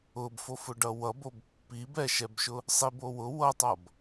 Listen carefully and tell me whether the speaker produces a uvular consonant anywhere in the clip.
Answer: no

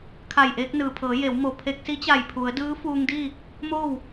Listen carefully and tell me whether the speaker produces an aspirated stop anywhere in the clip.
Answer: yes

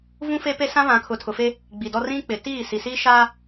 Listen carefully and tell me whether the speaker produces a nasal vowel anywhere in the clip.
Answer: yes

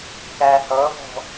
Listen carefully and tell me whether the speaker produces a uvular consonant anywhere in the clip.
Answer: no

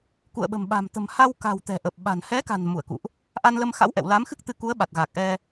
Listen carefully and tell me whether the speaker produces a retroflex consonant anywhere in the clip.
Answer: no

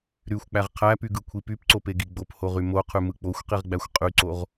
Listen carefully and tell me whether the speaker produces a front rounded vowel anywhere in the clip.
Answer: yes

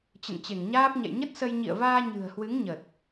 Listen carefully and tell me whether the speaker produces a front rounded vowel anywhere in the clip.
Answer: no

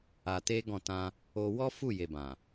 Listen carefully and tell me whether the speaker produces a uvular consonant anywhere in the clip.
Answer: no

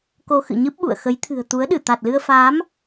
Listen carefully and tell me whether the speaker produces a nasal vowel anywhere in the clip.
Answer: no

